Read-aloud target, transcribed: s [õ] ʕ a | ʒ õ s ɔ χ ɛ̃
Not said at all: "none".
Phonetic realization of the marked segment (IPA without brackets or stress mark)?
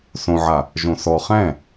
õ